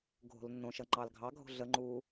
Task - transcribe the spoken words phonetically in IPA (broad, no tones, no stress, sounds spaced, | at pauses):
ɡʱ o̤ l nː õ ʃ ʌ ŋ͡ǃ ɑ l ɡʱ ɑ ɡʱ o̤ ɮ ə ŋ͡ǃ uː